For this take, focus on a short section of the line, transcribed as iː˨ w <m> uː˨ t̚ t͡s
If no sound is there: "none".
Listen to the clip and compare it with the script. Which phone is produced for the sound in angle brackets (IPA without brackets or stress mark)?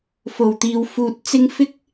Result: f